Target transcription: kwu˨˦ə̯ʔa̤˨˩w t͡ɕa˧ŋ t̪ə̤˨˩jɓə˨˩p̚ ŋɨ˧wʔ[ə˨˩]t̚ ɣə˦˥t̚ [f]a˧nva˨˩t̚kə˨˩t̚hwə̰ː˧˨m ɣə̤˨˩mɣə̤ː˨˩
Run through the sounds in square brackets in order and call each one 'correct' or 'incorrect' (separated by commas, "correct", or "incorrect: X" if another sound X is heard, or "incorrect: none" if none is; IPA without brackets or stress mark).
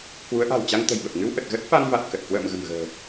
correct, correct